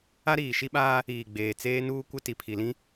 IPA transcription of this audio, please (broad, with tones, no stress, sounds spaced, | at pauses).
a˦ ɾ iː˨ ʃ i˦ ɓ aː˦ | iː˨ ɡ͡b eː˨ t͡s eː˦ n uː˦ kʷ ɪ˦ t i˨ pʰ i˨ l ĩ˦